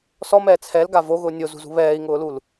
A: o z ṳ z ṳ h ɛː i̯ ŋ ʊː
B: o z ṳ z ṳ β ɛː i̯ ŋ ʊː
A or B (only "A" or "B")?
B